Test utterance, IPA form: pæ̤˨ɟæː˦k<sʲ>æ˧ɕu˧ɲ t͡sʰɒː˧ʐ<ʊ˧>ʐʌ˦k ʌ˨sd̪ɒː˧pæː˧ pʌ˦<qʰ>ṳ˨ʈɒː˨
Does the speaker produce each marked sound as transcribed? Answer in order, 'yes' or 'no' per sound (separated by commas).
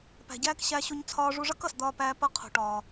no, no, yes